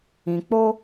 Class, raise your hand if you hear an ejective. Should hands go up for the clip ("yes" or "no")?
no